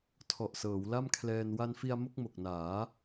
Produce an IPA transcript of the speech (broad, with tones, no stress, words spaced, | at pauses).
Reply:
tʰɔ˨˩ʔsɤː˩˦wla˥˩mkʰlɛː˧n wa˧nfi˧a̯ mo˥˩k̚mo˨˩k̚naː˩˦